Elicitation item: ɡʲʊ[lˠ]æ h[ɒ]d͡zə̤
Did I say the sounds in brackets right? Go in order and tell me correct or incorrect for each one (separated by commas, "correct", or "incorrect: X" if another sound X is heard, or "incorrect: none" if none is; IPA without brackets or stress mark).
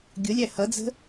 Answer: incorrect: lʲ, incorrect: ʌ